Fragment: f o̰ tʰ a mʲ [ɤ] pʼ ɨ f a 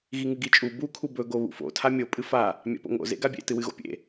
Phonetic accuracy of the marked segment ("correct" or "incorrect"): incorrect